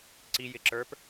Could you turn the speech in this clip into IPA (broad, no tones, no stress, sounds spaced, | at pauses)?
ǀ i j ɪ ǁ ə˞ p